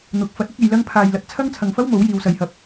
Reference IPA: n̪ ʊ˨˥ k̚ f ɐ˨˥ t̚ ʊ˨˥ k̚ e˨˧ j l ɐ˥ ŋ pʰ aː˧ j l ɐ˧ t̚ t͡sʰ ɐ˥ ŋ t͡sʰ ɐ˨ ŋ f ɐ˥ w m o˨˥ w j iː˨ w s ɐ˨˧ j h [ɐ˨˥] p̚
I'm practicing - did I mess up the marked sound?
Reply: no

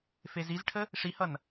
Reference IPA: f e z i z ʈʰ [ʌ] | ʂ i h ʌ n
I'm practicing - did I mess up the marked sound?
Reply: yes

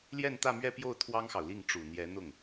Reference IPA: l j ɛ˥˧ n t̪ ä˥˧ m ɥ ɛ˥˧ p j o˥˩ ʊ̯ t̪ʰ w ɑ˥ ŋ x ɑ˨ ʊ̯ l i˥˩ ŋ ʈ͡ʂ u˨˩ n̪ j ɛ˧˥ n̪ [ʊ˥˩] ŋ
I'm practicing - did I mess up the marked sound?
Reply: no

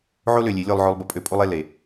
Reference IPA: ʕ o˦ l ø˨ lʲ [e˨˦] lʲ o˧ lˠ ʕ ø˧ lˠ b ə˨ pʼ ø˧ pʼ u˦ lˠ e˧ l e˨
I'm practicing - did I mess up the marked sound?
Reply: no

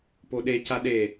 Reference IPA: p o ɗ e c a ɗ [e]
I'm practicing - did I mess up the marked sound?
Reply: no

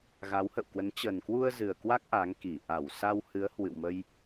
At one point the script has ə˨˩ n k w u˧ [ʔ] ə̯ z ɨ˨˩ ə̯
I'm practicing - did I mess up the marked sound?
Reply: yes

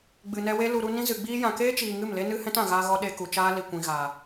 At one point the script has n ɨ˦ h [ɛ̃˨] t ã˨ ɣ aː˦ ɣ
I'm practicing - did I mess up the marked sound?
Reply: yes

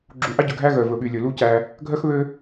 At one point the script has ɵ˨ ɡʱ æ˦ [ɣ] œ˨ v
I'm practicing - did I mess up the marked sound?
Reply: no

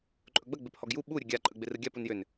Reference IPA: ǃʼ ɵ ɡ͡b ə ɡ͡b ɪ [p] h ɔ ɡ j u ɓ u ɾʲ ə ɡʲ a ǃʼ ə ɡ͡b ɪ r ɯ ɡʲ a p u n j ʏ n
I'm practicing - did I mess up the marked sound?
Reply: no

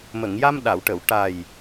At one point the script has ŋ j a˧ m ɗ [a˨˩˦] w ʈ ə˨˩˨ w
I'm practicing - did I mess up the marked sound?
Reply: yes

